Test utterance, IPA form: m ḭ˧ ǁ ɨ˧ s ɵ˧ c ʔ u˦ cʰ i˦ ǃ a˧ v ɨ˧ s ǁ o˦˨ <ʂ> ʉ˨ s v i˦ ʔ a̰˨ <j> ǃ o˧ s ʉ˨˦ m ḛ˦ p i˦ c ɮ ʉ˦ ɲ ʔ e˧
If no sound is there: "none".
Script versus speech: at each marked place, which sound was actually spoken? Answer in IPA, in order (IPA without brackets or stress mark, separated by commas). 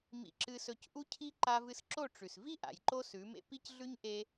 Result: ʈ͡ʂ, j